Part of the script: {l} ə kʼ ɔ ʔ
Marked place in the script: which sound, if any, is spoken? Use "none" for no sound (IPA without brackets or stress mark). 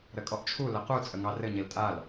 ɾ